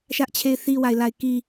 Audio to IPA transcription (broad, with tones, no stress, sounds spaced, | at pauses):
ʃ ä˦ ʔ t͡ɕʰ e˦˨ ɪ̯ θ i˦ w a˦˨ ɪ̯ l a˦˨ ɪ̯ k i˦